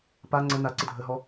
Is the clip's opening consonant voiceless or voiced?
voiceless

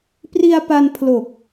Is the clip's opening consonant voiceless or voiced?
voiceless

